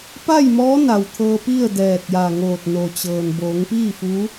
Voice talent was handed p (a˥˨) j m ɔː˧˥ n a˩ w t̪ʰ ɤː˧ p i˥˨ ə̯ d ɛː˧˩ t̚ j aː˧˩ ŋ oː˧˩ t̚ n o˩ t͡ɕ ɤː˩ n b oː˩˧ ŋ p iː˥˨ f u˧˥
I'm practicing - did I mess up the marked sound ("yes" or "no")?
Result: no